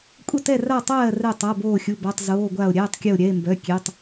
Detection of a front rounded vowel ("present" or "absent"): present